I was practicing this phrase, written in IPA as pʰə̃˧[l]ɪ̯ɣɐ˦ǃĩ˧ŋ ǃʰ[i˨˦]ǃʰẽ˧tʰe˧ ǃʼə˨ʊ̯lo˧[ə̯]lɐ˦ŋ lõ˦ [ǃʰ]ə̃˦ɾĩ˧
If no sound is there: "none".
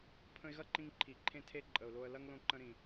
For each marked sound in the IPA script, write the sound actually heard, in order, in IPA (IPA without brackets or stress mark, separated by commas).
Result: none, i˨, ə̯, ǃ